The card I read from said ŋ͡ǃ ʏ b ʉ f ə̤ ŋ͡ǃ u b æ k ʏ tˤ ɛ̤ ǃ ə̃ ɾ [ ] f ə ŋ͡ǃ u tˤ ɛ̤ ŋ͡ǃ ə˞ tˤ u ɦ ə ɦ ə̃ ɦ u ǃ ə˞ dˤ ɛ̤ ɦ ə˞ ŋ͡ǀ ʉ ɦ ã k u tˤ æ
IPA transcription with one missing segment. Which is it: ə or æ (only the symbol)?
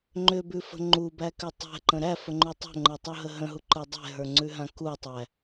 æ